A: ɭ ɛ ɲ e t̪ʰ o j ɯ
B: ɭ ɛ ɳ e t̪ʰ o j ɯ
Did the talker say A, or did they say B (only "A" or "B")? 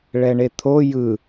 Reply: B